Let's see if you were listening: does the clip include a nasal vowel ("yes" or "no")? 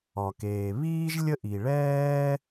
no